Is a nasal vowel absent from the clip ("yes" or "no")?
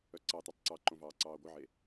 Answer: no